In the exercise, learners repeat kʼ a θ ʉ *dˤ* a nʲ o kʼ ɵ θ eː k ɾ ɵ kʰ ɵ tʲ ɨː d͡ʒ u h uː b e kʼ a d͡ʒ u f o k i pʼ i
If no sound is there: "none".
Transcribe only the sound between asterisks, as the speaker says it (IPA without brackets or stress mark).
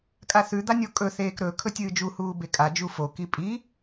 d̪